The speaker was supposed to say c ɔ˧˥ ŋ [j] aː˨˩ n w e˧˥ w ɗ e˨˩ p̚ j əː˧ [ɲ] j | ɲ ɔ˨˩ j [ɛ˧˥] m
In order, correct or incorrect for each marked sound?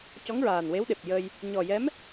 incorrect, incorrect, correct

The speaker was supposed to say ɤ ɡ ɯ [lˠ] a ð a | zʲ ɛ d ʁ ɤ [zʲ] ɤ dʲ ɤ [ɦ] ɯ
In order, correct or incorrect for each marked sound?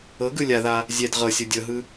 incorrect, incorrect, correct

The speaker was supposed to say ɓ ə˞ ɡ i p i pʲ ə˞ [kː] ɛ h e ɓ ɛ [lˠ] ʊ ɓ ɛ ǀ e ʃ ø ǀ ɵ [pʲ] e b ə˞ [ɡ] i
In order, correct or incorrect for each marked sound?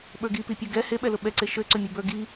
incorrect, incorrect, incorrect, correct

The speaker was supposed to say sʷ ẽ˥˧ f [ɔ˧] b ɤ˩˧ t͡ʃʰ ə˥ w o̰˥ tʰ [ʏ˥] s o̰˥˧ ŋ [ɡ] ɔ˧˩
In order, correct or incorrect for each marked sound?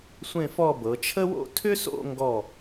incorrect, correct, correct

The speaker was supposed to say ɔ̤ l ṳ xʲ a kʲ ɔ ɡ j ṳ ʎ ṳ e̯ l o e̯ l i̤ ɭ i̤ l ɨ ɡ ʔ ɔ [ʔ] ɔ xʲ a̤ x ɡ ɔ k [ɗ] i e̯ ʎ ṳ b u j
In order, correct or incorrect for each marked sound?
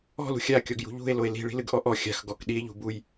correct, correct

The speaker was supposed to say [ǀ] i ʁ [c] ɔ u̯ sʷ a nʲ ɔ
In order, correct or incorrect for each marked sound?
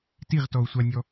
incorrect, incorrect

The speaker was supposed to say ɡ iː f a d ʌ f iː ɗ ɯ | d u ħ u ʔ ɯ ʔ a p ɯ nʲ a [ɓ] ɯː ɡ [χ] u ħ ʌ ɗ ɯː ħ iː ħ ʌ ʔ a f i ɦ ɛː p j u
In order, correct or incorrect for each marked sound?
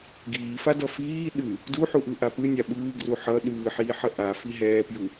correct, incorrect

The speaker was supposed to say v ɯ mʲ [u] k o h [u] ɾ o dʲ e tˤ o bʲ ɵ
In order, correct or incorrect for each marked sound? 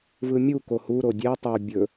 correct, correct

